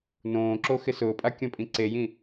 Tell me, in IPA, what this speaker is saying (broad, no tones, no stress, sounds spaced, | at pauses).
n õː ǁ o x ɪ s ʊː pʼ a kʲ ɔ̃ pʼ ĩ ǀ e j ĩ